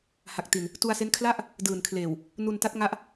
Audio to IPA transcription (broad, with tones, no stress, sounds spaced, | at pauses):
h a˨˩ k̚ t i˧ n | t u˧ a̯ s e˦˥ n kʰ l a˦˥ ʔ | d ɯː˨˩ n kʰ l eː˨˩ w | n u˧ n t a˦˥ t̚ ŋ a˦˥ ʔ